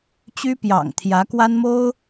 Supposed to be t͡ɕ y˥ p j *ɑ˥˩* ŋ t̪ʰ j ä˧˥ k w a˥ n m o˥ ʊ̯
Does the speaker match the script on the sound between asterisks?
no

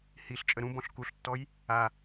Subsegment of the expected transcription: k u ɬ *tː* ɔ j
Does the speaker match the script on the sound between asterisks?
yes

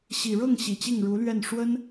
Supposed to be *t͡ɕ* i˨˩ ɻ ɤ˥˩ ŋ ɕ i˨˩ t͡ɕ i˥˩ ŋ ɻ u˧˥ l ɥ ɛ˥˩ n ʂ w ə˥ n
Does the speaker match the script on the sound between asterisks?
no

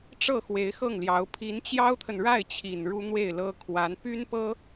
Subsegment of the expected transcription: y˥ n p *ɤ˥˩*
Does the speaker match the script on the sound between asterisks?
no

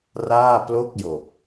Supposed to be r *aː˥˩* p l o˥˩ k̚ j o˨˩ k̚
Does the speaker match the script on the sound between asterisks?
yes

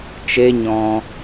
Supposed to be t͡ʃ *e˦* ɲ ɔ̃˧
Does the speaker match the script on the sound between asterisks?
yes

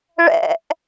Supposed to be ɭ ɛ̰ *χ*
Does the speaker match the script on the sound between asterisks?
no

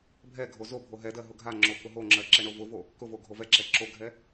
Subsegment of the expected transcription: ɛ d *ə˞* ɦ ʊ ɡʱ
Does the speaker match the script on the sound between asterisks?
no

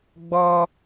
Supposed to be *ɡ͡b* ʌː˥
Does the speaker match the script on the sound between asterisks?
yes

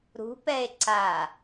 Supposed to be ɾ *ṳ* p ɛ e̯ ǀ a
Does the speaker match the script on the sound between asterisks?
yes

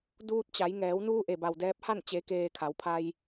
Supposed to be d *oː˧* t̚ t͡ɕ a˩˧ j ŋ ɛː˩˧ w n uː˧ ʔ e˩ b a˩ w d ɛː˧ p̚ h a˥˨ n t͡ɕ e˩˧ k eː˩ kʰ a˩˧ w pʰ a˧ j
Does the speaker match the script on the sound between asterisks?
no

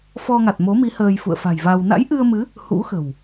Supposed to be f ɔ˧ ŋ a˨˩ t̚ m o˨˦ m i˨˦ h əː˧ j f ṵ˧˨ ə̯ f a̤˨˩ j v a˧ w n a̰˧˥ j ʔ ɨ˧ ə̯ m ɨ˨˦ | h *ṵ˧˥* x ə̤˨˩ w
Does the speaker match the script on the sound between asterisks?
yes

